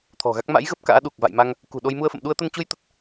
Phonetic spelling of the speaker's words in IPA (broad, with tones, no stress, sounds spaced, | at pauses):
t̪ʰ ɔ̤˨˩ ɣ a˦˥ k̚ m a̰˧˥ j ɣ ə˦˥ p̚ k a̰ː˧˥ ɗ u˨˩ k̚ v a̰˧˨ j m a˧ ŋ | k ṳ˨˩ ɗ o˧ j m u˧ ə̯ f ə̰˧˨ m ɗ u˧ ə̯ t̪ ə˧ n t͡ɕ u˧ j t̪ ə˦˥ t̚